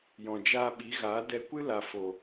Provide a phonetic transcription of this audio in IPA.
j ɔ̃˨ d͡ʒ aː˧ ɓ i˨˦ ɣ aː˨˦ d ɛ˧ kʷ ɨ˦ l a˨ f o˨

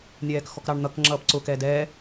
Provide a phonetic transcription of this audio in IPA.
nʲ ɛː k x ɔ k ɾ ɑ ɳ n̪ ʌ k ŋ͡ǁ ʌː p ǀ ʊ k ɛ d ɛ

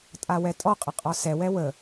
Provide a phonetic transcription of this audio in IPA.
tʼ a w ɛ tʼ ɔ qʼ ə qʼ ɒ s ɛ w ɛ w ə

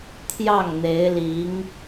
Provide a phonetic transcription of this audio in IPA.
t̪ʰ j ɑ˥˩ ŋ n̪ e˧˥ ɪ̯ l i˧˥ ŋ

